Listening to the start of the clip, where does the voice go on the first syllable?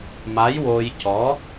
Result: rising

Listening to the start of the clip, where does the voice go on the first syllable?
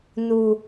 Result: low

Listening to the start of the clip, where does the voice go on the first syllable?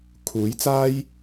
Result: rising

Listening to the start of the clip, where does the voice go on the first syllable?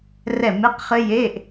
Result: falling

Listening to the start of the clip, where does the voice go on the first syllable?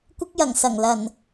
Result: high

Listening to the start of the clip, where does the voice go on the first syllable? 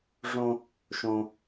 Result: high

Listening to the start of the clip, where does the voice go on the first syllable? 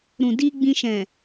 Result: low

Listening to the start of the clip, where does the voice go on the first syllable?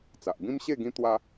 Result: low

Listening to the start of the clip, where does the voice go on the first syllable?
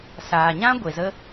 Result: low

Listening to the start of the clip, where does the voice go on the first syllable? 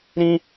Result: high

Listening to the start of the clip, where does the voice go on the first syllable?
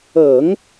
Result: low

